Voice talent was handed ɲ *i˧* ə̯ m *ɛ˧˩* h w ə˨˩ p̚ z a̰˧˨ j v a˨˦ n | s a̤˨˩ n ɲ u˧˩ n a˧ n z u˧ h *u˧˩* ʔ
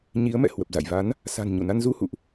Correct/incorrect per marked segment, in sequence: incorrect: i˨˦, incorrect: ɛ̰˧˨, incorrect: ṵ˧˨

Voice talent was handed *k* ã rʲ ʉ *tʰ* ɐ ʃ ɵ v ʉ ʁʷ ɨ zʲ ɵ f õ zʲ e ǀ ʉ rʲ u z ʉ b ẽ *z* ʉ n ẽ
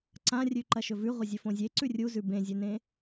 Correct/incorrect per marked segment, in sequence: incorrect: ǀ, incorrect: ǃ, incorrect: zʲ

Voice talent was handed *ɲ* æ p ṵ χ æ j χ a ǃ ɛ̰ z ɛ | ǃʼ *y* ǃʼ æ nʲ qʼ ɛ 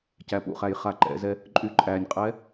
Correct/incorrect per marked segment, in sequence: incorrect: c, correct

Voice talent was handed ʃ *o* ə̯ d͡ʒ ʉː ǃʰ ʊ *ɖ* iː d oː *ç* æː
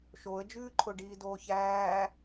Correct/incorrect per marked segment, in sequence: correct, correct, correct

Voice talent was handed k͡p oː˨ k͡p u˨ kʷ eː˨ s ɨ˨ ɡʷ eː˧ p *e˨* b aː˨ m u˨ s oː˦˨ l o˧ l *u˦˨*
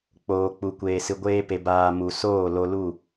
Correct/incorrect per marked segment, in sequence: correct, correct

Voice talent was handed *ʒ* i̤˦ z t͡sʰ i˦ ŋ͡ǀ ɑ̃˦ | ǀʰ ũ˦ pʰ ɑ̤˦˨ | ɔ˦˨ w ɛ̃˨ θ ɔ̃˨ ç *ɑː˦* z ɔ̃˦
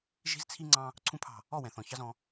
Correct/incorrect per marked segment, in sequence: correct, incorrect: ɑ˦

